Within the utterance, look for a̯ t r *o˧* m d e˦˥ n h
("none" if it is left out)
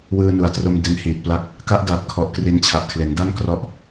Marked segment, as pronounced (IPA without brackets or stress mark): o˧